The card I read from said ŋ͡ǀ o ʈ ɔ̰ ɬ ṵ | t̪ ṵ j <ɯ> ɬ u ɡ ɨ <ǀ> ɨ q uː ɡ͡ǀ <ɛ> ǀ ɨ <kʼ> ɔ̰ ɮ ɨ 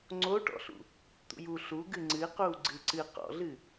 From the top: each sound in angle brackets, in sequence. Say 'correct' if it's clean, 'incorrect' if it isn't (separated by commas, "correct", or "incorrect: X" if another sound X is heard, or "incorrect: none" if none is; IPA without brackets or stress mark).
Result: incorrect: u, incorrect: ŋ͡ǀ, incorrect: ɨ, incorrect: q